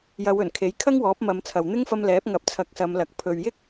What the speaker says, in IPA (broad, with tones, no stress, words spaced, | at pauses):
jɐ˨˧wɵ˨˩nkʰe˨˥j kʰɐ˥ŋwɔː˨˥p̚mɐ˨˧mt͡sʰɐ˨w n̪ɪ˥ŋfɐ˧mlɛː˨˥p̚ ŋɐ˨˥p̚t͡sʰɐ˨˥k̚sɐ˨˧mlɐ˨k̚ pʰɵ˨ɥjɪ˥k̚